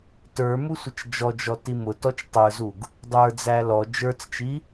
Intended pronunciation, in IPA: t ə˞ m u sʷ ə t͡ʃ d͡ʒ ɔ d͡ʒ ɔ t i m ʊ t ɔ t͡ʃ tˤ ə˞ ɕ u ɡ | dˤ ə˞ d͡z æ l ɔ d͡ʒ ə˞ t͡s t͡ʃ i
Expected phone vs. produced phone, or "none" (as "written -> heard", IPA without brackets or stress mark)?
ɕ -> z